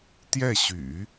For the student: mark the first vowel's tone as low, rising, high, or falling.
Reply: falling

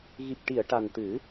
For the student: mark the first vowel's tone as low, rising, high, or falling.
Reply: low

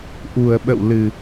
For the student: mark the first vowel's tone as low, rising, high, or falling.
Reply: low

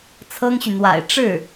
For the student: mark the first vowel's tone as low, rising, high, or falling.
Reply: high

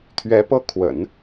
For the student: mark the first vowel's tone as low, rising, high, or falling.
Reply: rising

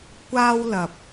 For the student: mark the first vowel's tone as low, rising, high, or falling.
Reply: high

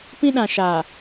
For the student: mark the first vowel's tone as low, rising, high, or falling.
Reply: high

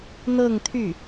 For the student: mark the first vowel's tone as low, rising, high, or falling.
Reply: falling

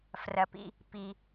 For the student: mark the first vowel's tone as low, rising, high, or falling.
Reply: low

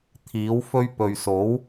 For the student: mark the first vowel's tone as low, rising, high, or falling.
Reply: rising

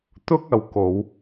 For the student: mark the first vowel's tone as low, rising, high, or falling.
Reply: high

